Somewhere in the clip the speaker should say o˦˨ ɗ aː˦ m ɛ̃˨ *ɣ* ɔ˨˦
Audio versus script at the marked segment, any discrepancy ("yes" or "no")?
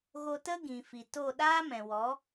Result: yes